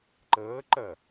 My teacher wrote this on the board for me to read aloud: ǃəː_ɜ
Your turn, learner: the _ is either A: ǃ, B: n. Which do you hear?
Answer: A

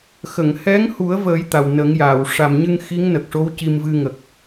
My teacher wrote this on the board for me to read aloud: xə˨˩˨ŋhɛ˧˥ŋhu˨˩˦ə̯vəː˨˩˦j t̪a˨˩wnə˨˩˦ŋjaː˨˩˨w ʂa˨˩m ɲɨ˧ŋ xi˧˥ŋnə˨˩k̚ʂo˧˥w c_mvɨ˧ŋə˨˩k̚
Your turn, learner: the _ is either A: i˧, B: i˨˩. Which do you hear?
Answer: A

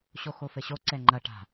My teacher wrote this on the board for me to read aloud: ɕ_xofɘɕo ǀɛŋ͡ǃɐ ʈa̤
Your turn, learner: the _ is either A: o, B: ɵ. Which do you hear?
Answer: A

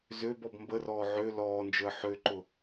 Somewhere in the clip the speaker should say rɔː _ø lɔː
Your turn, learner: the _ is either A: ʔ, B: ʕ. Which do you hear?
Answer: B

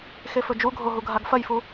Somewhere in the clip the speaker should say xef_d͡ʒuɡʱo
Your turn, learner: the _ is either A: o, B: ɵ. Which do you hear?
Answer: B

